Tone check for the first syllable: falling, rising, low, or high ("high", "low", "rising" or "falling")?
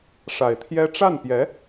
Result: low